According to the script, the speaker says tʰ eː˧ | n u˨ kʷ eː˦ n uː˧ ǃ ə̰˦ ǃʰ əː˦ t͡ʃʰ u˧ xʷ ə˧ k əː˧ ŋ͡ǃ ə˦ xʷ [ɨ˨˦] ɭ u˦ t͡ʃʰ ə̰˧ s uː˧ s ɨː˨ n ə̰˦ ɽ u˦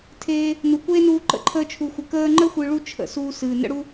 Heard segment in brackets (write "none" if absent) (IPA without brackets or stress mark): ɨ˧